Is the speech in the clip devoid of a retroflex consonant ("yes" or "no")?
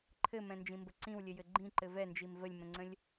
yes